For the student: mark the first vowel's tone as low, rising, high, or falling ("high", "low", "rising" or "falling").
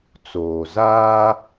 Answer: low